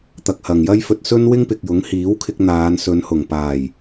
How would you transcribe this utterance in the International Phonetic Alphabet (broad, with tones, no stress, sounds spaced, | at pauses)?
t̪ ɐ˧ k̚ h ɐ˨ ŋ j ɐ˥ j f ɵ˧ t̚ s ɵ˥ n w ɪ˥ ŋ p ɪ˨ k̚ j ʊ˨˥ ŋ h iː˨˥ w kʰ ɪ˧ k̚ n̪ aː˨˧ n s ɵ˨˧ n h ʊ˨˩ ŋ p aː˨˩ j